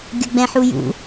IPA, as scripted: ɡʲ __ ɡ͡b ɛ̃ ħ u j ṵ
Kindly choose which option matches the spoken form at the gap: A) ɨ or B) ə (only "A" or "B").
B